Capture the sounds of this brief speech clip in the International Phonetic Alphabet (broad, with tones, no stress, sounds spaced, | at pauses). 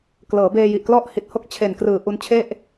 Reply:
k l ɤː˩˦ b eː˧ j i˨˩ ʔ k l ɔ˥˩ ʔ h i˨˩ t̚ h o˥˩ k̚ t͡ɕʰ e˨˩ n k r ɯː˨˩ ʔ u˧ n t͡ɕʰ e˥˩ ʔ